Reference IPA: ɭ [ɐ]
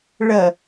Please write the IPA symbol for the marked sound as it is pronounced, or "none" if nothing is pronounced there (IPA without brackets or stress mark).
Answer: ɐ